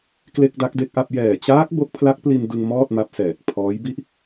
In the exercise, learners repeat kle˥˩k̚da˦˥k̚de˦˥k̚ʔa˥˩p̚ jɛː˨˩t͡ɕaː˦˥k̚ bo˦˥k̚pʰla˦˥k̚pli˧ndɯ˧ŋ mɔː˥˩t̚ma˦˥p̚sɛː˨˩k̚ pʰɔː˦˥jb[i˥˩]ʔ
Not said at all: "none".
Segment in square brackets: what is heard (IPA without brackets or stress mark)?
i˥˩